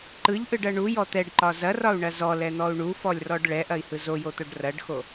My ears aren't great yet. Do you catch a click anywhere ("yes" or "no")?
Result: yes